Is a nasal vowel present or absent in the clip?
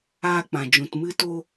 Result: present